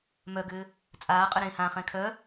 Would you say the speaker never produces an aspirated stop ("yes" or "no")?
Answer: no